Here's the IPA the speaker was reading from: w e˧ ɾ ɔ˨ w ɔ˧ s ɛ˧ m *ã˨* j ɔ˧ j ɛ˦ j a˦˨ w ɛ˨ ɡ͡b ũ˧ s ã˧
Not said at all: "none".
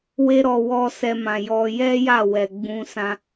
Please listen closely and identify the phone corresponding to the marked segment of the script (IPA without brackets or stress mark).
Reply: ã˨